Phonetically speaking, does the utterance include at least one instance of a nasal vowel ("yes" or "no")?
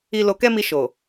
no